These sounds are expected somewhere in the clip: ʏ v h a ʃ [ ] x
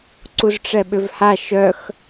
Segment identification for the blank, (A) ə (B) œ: B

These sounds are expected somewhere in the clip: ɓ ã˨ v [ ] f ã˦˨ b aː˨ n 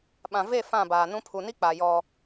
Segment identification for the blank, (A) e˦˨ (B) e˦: A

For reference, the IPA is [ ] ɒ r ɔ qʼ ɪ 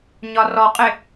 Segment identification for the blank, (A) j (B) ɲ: B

